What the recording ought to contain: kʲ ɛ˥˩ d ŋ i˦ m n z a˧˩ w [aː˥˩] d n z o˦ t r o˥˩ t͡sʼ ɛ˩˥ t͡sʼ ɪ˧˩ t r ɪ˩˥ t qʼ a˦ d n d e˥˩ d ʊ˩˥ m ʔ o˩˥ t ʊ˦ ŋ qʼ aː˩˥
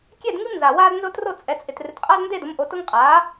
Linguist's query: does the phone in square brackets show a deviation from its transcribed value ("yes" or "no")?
yes